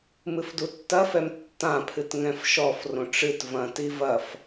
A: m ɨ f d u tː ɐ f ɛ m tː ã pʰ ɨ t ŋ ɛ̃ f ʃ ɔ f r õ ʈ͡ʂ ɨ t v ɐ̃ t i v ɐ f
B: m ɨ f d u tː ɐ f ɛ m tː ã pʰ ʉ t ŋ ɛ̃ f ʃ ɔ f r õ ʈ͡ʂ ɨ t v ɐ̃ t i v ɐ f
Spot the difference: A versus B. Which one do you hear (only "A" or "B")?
A